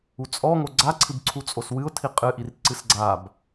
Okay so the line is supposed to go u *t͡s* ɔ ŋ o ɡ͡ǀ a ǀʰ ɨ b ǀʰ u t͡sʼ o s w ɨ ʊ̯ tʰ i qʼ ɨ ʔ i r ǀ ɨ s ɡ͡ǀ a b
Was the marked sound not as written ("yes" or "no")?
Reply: yes